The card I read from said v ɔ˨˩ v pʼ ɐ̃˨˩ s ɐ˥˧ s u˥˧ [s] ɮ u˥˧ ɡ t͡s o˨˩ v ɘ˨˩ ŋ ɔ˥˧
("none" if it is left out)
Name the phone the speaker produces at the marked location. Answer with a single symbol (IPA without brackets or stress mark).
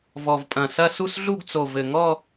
s